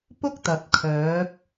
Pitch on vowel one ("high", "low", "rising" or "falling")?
high